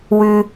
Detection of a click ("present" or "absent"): absent